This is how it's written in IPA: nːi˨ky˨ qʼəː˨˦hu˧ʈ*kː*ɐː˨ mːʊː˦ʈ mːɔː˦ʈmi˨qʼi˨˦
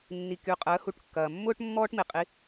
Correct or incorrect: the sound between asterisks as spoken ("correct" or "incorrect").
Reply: correct